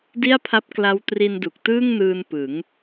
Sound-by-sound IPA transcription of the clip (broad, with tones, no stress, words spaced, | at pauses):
di˥˩a̯pʰa˦˥p̚kla˦˥w tri˧ndu˨˩k̚tɯː˥˩ŋnɯː˧n pɯ˩˦ŋ